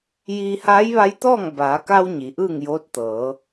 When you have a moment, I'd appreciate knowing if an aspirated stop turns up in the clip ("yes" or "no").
no